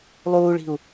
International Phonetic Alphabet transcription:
lˠ uː ɭ i̤ u̯

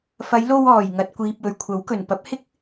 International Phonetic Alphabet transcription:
f ɐ˨˧ j l o˧ w ɔː˨˩ j ŋ ɐ˨ t̚ kʷ iː˨ p̚ w ɵ˨˩ ɥ kʷʰ ɐ˨˥ w k ɵ˨˩ n p ɐ˨˥ p̚ h ɪ˥ k̚

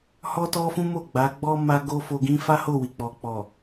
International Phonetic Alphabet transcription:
h ɔ˦ t ɔ˦ f ũ˦ m o˦˨ ɡ͡b a˨˦ ɡ͡b ɔ˦ m a˧ ɡ o˦ f o˧ ɡ ĩ˦ f a˦ h o˦˨ w i˨ k͡p ɔ˨ k͡p ɔ˨

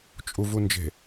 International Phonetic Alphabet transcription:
t͡ʃʼ u v u n d͡ʒ e̤

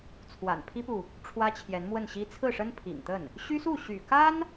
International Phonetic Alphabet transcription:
t͡sʰ w a̰˨˩ n pʰ i˥ p u˨ | ʈ͡ʂʰ w ä˥ t͡ɕʰ j ɛ˧˥ n m w ə˥˩ n ɕ i˥ t͡sʰ ɹ̩˥˩ ʂ ə˥ n pʰ ḭ˨˩ ŋ t̪ ə˥˩ n | ɕ y˥ s u˥˩ ɕ y̰˨˩ k a˥ n

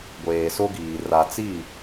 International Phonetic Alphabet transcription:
ɡʷ eː˨ s o˦ ɡ iː˨ r a˨ t͡s i˦˨

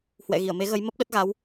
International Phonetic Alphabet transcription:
h w ɛ̰˧˨ ɣ i˧˩ ə̯ m e˨˦ ɣ ə˨˦ j m ə˦˥ p̚ ɗ ə˦˥ t̚ ɣ a˨˦ w

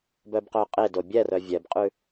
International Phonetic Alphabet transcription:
b œ b q œ qʼ e d o bʲ ɛ r œ vʲ ɛ b qʼ ʉ

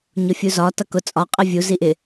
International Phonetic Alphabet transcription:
ɲ ʊ fʲ u z ɒ t ʌ k ʊ t͡sʼ ɒ qʼ ɪ vʲ u z i ʔ ɪ

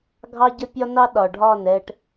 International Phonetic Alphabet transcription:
ɡʱ ɑ˦ ɟ ə˦ pʲ ɒ˦ n ɑ˦ ɗ ɒ˨ ɖʱ ɒ˦˨ n ɛ˧ ʈ

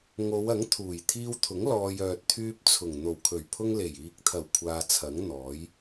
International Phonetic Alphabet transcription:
ŋ o˨˧ w ɐ˨˥ ŋ t̪ʰ uː˨˩ j t̪ʰ iː˧ w t̪ʰ ʊ˨˥ ŋ l ɔː˨ j œː˨ t̚ t̪ʰ yː˧ p̚ t͡sʰ ʊ˨˩ ŋ n̪ o˨˩ w kʰ ɵ˨˩ ɥ pʰ ʊ˧ ŋ l e˨˩ j iː˨ k̚ t̪ʰ ɐ˨˩ w kʷʰ aː˨ t͡sʰ ɐ˨˥ ŋ n̪ ɔː˨˥ j

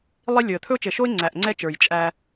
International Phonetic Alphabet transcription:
lˠ i˦ lʲ ɵ˨ ə̯ t̪ʰ ɵ˦ ʊ̯ t͡ʃ ɘ˨ ʃ o˦ ɪ̯ ŋ͡ǀ æ˨ ʔ ŋ͡ǀ ɛ˦ t͡ʃ ə˞˨ j t͡ʃʼ æ˦

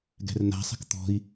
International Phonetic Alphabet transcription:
ɡ ɛ̤ r n a̤ sˤ ɛ̤ k t̪ ɔ̤ i̯

